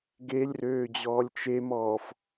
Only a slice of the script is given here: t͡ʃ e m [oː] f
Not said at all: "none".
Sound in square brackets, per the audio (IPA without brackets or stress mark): ɔː